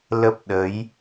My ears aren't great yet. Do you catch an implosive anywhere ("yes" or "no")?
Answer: yes